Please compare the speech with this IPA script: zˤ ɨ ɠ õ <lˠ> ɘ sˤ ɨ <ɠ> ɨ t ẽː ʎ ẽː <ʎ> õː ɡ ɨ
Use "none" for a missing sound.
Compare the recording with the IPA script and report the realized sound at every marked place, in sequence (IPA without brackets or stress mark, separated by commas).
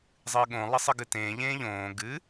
lˠ, ɡ, ʎ